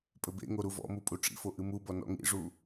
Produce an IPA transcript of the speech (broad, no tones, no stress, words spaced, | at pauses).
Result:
pʼɘbḛŋo ɾuvɔ̰mu pʼuʈ͡ʂḭfo ʔɨmubɔ nɔ̰ŋḭʐu